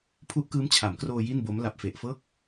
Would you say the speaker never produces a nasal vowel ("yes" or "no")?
yes